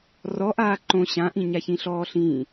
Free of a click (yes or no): no